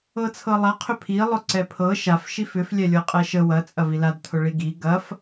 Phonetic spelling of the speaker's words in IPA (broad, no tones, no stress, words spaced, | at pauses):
ɤt͡sʰɤlˠa qʰʏpʰi lˠʊǀɛpʰɤ ʃaf ʃifʏf lʲɛlʲɤqʼɛʃə wɐ t͡sʼɐvilad tʰʊɭiɡi ɡɐf